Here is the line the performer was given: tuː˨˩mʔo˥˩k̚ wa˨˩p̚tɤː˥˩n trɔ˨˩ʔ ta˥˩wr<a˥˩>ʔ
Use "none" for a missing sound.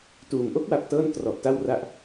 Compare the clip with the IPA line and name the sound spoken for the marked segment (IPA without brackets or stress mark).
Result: a˥˩